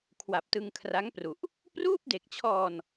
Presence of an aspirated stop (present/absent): present